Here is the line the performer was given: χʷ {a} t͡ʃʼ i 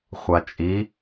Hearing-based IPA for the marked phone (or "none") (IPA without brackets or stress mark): a